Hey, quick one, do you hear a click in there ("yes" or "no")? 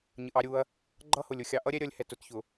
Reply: yes